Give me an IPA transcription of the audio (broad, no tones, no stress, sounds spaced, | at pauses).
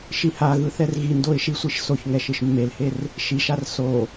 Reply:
ʃ i h a ɣ ɯ θ ɛ r ɣ i n d o ɪ̯ ʃ i sʷ i ʃ s o ç ŋ ɛ ʃ ɯ ʃ mː e l h e r | ʃ i ʃ a r s o